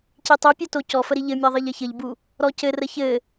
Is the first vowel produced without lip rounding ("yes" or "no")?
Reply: yes